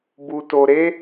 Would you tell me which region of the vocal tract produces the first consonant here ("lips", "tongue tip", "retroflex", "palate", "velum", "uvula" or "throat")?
lips